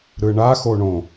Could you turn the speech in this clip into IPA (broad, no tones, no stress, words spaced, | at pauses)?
ɾɯɳa xoɳõ